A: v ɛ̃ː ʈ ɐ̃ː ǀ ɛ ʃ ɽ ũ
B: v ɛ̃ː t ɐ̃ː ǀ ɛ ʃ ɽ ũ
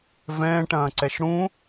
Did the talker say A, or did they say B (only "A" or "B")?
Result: A